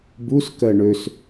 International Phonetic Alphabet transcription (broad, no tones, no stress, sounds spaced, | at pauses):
b u s k ɜ ɳ ø s